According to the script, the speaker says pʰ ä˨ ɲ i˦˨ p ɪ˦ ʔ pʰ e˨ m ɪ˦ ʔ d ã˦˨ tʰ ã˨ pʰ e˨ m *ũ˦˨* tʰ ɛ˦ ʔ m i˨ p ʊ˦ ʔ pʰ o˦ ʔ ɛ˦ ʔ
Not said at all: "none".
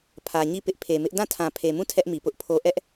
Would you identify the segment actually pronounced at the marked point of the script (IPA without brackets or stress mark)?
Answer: ũ˦˨